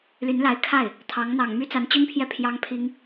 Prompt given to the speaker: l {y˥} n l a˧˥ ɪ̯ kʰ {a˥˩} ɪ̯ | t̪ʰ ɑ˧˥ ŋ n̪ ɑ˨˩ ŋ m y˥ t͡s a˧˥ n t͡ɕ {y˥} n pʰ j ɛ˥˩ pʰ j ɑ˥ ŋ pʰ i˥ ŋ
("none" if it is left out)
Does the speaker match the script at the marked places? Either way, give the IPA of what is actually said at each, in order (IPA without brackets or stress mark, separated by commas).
y˧˥, a˥˩, y˥